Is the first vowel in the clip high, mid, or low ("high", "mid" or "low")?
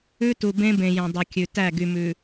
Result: high